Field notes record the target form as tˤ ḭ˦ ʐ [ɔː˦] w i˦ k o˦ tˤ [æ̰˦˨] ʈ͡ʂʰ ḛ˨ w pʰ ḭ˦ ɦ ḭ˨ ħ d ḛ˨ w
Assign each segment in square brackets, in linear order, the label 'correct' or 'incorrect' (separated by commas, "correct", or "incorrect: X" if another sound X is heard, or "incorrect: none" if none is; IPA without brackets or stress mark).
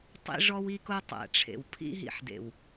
incorrect: ɔ˦, incorrect: æ̰˨